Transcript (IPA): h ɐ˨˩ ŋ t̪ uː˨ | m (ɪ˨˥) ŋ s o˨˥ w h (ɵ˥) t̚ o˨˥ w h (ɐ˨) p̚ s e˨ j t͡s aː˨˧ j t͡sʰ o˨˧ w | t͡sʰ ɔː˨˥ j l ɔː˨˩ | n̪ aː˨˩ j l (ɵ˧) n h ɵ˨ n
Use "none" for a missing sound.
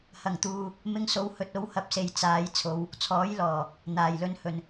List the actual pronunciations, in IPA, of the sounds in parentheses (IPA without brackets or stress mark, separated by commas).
ɪ˧, ɵ˨, ɐ˨˥, ɵ˧